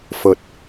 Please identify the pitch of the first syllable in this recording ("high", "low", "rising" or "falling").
low